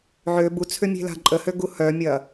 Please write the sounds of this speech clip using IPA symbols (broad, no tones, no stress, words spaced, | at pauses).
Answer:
ʕø but͡sʰʏmʲe̤la̤ ǃʼəhøɡu hœmʲɐ